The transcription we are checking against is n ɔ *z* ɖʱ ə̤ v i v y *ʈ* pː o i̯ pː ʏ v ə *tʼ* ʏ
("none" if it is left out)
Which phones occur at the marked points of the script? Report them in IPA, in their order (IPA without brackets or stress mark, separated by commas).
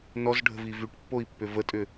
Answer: z, ʈ, tʼ